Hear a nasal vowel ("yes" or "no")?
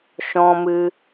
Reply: yes